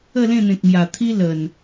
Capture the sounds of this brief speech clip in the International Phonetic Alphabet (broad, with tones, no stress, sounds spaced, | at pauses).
ə˥˧ l ẽ˥˧ n̪ ẽ˨ k̚ m j a˨˩ t̪ʰ i˦ l ə˨˩ n